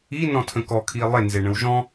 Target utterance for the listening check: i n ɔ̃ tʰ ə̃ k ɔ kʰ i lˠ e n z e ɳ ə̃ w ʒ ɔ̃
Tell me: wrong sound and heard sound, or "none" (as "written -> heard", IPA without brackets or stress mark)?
none